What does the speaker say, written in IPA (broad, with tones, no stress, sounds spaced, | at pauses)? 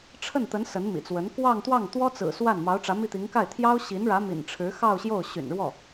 ʈ͡ʂʰ ə˥˩ n t̪ ə˧˥ n s ə˧˥ n m ḭ˨˩ t͡s w ə˧˥ n k w ɑ˥˧ ŋ t̪ w ɑ˥˩ ŋ t̪ w ɔ˥ t͡s ɹ̩˨˩ s w a˥˩ n m ɑ˧˥ ʊ̯ ʈ͡ʂ ä˧˥ m i˥˩ t̪ i˧˥ ŋ k a˥˩ ɪ̯ t̪ʰ j ɑ˥ ʊ̯ ɕ i˧˥ n ɻ ä˧˥ m ḭ˨˩ n ʈ͡ʂʰ ɻ̩˧˥ x ɑ˥˧ ʊ̯ ɕ j o˥˩ ʊ̯ ɕ y̰˨˩ n ɻ w ɔ˥˩